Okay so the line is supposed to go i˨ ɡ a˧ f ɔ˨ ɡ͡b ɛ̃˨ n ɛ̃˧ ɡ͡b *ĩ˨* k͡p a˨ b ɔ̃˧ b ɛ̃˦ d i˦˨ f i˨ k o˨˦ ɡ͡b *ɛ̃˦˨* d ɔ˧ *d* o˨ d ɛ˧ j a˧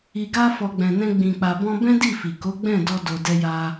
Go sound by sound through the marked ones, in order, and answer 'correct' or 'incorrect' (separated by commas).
correct, correct, correct